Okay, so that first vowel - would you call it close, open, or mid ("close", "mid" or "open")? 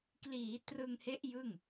close